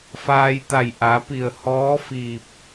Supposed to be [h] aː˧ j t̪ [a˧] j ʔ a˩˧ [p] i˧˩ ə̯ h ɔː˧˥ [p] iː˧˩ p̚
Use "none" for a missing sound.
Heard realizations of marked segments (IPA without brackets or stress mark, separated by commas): f, a˧˩, p, f